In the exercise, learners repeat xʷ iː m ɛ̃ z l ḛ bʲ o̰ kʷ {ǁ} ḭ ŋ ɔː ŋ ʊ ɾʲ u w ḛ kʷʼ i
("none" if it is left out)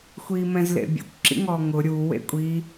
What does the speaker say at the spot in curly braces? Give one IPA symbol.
ǁ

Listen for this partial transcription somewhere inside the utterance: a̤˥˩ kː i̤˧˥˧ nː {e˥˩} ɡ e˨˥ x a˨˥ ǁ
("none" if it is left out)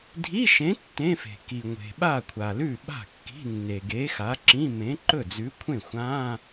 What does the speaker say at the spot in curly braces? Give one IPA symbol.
e˩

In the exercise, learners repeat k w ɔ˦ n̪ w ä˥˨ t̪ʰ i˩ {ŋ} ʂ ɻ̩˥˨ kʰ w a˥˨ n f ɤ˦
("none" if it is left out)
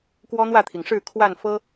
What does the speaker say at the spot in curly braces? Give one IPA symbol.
ŋ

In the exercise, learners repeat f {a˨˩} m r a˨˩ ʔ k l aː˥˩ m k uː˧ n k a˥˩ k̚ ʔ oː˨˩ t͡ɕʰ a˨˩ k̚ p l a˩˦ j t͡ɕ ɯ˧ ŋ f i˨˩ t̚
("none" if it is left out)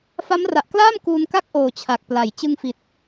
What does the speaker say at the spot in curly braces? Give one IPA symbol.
a˦˥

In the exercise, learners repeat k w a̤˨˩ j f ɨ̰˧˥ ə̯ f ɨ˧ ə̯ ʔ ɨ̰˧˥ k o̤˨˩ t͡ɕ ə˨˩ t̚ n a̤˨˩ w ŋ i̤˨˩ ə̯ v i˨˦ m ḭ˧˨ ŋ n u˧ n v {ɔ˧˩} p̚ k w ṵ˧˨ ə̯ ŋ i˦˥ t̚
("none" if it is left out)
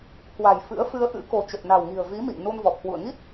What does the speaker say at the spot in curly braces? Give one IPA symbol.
ɔ˨˩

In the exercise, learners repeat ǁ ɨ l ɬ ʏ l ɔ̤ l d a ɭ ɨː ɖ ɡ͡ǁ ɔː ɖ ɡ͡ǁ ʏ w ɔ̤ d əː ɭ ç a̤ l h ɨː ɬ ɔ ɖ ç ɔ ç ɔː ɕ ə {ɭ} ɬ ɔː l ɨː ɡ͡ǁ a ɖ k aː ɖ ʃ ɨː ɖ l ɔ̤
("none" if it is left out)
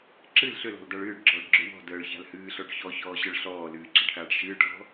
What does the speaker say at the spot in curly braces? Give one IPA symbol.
ɭ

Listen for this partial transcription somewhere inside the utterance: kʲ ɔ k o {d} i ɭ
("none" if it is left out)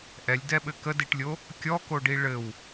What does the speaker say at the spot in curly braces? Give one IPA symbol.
ɖ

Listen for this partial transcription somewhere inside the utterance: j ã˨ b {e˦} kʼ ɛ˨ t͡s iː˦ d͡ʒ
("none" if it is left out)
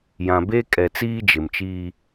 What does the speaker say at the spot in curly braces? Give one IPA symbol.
e˦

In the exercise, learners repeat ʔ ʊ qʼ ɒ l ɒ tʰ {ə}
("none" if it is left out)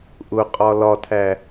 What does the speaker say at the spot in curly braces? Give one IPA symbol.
æ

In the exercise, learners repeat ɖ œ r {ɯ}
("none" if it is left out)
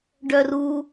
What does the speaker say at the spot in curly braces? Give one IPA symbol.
u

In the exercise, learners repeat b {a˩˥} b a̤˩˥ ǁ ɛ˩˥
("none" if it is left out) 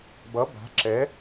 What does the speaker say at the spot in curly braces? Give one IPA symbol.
ʌ˩˥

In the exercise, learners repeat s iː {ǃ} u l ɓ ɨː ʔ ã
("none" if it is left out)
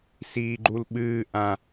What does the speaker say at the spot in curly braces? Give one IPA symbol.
ɡ͡ǃ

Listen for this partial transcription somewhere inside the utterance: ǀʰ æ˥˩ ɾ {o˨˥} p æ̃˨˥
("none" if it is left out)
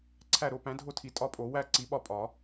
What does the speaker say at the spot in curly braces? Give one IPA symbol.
o˨˥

